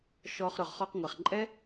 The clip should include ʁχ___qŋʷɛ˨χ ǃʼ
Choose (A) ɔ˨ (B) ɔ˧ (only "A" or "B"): B